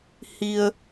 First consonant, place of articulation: glottal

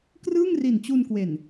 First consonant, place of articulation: velar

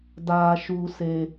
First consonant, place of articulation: alveolar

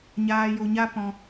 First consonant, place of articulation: palatal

